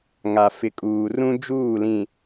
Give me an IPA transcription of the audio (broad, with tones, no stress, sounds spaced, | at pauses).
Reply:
ŋ a˨ f ɪ˨ kʼ uː˨ r ũ˦ d͡ʒ uː˦˨ l ĩ˨